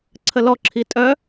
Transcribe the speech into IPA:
ǀʰəlɔǁʰi tʼœ

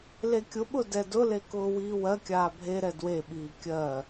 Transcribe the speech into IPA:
lekʲʊɓʊ dɛdʊle kʊːwiːwɜkʲaː bʱeɾɛ dweɓiː kʲɜ

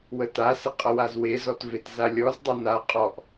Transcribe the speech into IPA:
wətasɪ qʼʌwazwezɔt vetzalʲɔzdˤʌ na qʼɔʔ

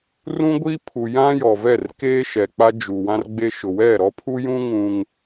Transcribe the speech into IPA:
rũ˦ ɡʷiː˦pʰu˨ jã˦jɔ˨vɛ˦˨rkeː˦ ʃɛ˨k͡pa˦ d͡ʒu˨ wã˦rɡ͡be˦ ʃʊ˨ wɛ˦˨ ɾɔ˦pʰu˦jũ˦ ŋũ˦ŋ

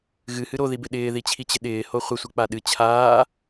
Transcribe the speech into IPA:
ɣɨhɨ ɾoðibɪ ɗɪːðit͡ɕʰit͡ɕɪ ɗɪːho χʷɪsʷɨk͡pa ɗɨ t͡ɕʰaː

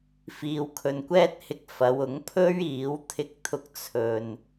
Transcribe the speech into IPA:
fiː˨wkʰɵ˨nkʷɛː˥t̚hɪ˧k̚ fɐ˨˧wʊ˨˥ŋpʰɵ˥ɥiː˨˥w t̪ʰɪ˧k̚t̪ʰʊ˧k̚ t͡sʰɵ˨n

